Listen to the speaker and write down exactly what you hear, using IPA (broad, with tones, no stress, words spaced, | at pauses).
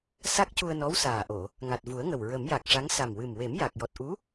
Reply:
sa˦˥k̚cu˧ə̯nɔ˧˥w saː˨˩ʔo˨˩˨ | ŋa˨˩t̚vu˨˩˦ə̯ŋə˨˩w ɹə˨˩˦mja˨˩k̚ʂa˧˥ŋ sa˨˩mwɨ˨˩mwe˨˩˦m ja˨˩k̚ jɔ˨˩t̚ʔu˧˥